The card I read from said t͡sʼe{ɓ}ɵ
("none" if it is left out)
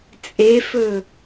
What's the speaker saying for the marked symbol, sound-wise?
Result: f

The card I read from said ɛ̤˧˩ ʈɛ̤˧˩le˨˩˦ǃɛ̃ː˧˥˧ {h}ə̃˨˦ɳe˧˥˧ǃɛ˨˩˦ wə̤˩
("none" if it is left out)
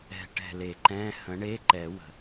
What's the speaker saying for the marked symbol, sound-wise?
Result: h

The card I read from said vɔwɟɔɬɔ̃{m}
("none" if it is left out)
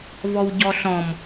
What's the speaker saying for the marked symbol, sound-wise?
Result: m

